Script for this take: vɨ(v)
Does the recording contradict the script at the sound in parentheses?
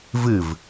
no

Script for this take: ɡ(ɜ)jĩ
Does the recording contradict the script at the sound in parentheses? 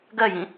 no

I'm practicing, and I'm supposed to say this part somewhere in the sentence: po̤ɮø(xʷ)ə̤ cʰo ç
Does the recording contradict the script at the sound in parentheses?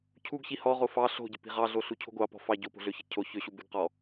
yes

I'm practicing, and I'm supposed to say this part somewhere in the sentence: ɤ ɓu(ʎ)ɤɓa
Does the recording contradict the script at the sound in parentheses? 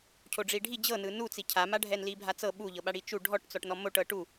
no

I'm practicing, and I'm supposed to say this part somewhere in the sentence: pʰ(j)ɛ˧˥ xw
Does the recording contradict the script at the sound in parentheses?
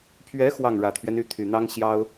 yes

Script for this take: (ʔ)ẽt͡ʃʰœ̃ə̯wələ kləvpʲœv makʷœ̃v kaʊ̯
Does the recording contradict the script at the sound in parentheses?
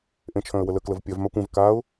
no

